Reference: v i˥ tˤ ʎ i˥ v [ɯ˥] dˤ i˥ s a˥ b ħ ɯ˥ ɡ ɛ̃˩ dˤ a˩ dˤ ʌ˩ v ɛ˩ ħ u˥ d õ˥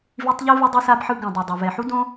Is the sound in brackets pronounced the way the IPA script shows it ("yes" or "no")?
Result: yes